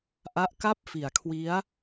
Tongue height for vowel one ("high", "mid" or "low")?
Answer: low